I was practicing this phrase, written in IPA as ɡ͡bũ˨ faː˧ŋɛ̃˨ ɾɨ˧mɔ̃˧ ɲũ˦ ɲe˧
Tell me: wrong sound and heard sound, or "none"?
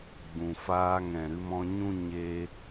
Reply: none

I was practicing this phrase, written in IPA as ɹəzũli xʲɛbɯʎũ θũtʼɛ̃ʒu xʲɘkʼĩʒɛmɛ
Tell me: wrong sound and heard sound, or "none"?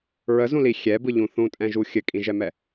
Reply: none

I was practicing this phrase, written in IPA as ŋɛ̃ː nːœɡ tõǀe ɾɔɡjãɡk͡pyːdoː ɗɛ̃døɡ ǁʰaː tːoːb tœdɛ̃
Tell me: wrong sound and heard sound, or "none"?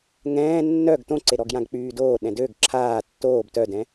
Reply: none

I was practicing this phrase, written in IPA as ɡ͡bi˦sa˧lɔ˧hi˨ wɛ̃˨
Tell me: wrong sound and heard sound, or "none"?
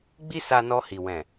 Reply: l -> n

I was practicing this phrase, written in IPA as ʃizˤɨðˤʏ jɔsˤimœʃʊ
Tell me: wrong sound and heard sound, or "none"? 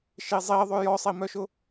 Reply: ɨ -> i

